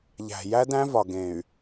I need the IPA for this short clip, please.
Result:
ʎ æ̤˨ j æ˦ d æ̃˦ v ɒ˨ ɡ ẽ˨ y̯

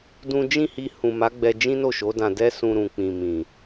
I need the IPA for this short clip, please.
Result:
d ũ˦ d͡ʒ ĩ˦˨ h i˧ h ũ˨ m a˨˦ ɡ͡b ɛ˧ d͡ʒ ĩ˦ n o˦˨ ʃ o˨˦ d ã˧ d ɛ˦ s ũ˧ ɾ ũ˨ k͡p ĩ˨ m ĩ˨

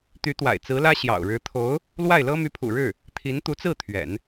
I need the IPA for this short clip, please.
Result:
t̪ y˧˥ t̪ w a̰˨˩ ɪ̯ t͡s ɹ̩˧˥ l ä˥ ɕ j ɑ̰˨˩ ʊ̯ ɻ ɻ̩˧˥ t̪ʰ o˧˥ ʊ̯ | l w a˥˩ ɪ̯ l ɤ˥ m y˧˥ pʰ ṵ˨˩ ɻ ɻ̩˥˩ | t̪ʰ i˧˥ n t̪ u˧˥ t͡s ɹ̩˥˩ t̪ʰ ɥ ɛ̰˨˩˦ n

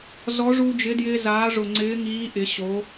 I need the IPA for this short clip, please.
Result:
z ɔ˨˥ ʐ u˧ d͡ʒ ɪ˨˥ d j ɪː˧ z aː˨˥ ʐ ʊ˧˩ ŋ͡ǀ ɪː˨˥ ŋ iː˨˥ ʔ ɪ˩˧ ɕ o˩˧

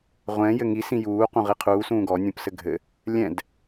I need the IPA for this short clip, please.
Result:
ʁʷ ɛ̃ j ɘ ŋ i s ĩ j uː q ũ ʁ i qʰ uː s ũː ɡ ɔ nʲ ũ p s ɘ ɡʱ ɘ | lʲ ɛ̃ d

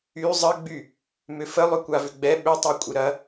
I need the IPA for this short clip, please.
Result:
y zˤ ə ɡ͡b y | m ʏ f ə lˠ ʏ kʷ a v ʏ ɡ͡b ɛ ɓ ʏ tˤ ɛ kʷʼ ɪ ɾ ɐ

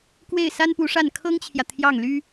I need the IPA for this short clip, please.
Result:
k w e˥˩ ɪ̯ s a˥ n p u˧˥ ʂ a˥˩ n kʰ ɤ˥ ŋ t͡ɕʰ j ä˨ t̪ʰ j ɑ˥˩ ŋ l y˥

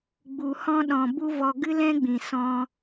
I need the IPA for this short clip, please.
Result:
ɡ͡b u˨ h ɔ̃˦ ɗ ɔ̃˨ b u˦ v ɔ˧ ɡ ɨ˦ l ɛ̃˦ ɡ͡b ĩ˨ s ɔ̃˧

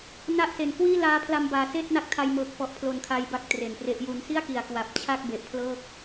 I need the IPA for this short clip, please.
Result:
n a˥˩ ʔ s e˨˩ n k w iː˥˩ l aː˦˥ pʰ l a˧ m b aː˩˦ s eː˥˩ t̚ n a˦˥ k̚ tʰ a˧ j m ɤː˨˩ k̚ f ɔ˨˩ ʔ pʰ l o˨˩ n kʰ a˧ j b a˥˩ k̚ t r e˨˩ n p r e˦˥ ʔ j u˦˥ n s i˥˩ a̯ k i˨˩ a̯ k w a˨˩ p̚ t͡ɕʰ a˥˩ k̚ b e˨˩ ʔ pʰ l ɤː˥˩ k̚

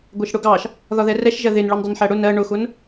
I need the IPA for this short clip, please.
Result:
ɡʷ ɛ ʃ ɽ ʊ ɡ ɑ ʃ | ð ɒ ð ɛ r ɛ ʃ ʒ ɜ ð ɪ n ɭ u n dˤ i n ħ æ ɽ ʊ n ɜ ɳ ʊ x ʊ n

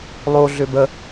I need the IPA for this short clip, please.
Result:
lˠ o ɮ ʏ b ə

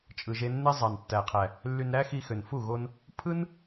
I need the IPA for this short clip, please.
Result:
t͡ʃʼ ɯ˨ ʒ e˧ nː e˦ zˤ ɑ˨ n tː æ˨ qʰ æ˨ | lː y˧ n ɾ æ˦ x i˧ x ø˨ n f u˦˨ ɣ o˧ n | pʰ ɯ˦ n

